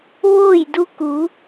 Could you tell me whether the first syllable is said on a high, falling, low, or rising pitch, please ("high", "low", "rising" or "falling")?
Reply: falling